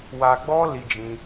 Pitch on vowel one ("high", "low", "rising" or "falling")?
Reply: low